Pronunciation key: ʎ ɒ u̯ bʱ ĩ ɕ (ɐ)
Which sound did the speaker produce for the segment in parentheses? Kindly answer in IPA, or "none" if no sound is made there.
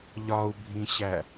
æ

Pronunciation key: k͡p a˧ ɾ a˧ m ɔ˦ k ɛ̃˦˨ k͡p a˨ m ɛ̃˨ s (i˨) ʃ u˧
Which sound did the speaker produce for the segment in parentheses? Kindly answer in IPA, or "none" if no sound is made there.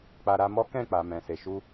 e˨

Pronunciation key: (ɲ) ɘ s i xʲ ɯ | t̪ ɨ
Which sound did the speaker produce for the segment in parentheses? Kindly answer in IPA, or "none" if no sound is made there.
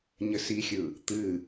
ɲ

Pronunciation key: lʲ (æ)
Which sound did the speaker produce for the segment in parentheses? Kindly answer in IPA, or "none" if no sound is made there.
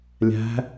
æ̤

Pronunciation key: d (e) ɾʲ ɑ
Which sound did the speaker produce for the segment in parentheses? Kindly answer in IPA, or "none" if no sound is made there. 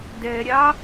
ɛ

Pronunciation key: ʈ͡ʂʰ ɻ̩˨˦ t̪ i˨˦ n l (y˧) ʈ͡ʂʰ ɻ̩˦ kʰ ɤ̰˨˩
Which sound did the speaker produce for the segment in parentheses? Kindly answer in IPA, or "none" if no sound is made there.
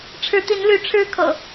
y˨˦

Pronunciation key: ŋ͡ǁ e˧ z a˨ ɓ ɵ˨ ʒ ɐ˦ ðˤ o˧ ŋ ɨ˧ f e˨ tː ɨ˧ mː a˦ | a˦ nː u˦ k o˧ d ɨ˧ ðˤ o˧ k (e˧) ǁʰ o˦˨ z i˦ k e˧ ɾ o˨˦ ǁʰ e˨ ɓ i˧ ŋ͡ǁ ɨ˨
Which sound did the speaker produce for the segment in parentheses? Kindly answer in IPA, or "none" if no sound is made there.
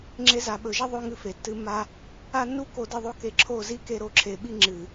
e˧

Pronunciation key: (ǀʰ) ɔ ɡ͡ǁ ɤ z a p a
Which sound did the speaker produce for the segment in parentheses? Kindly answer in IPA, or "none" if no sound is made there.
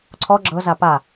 ǀʰ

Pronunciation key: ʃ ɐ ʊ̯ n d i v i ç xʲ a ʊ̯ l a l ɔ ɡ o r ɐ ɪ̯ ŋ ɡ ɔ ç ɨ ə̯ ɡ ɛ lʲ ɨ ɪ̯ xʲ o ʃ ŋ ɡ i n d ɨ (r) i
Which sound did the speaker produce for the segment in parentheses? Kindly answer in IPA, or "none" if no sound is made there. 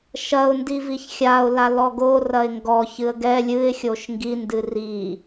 r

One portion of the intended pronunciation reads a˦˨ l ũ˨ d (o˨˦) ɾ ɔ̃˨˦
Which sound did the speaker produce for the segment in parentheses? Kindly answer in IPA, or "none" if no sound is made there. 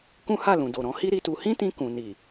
o˨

